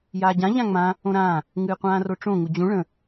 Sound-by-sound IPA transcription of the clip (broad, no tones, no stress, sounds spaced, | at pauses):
j aː ɟ ã ʎ ã ŋ͡m ã | õ ɾ ãː | ŋ ɨː qʷ ãː r o ʈ͡ʂ õ ŋ u d͡ʑ ũ ɭ ə̃